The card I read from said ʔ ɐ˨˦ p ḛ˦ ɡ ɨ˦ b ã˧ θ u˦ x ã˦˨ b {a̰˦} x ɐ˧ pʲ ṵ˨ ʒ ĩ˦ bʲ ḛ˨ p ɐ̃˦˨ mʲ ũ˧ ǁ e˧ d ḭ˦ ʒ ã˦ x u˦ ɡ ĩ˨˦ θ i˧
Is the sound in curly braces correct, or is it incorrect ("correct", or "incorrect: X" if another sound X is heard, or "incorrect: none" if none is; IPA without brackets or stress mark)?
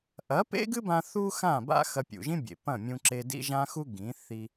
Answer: correct